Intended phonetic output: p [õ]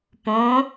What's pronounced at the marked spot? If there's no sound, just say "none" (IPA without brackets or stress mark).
õ